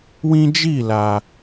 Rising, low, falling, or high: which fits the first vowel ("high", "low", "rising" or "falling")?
high